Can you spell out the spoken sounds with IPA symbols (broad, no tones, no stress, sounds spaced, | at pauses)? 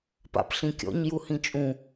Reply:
p a̰ p ɬ ĩ kʲ ɔ̰ ɲ j u h ĩ t͡ʃʼ ũ